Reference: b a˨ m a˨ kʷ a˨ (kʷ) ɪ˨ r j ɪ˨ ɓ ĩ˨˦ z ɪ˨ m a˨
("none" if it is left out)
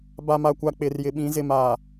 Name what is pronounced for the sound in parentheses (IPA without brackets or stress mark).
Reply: k͡p